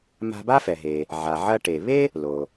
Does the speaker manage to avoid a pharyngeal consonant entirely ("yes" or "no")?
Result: no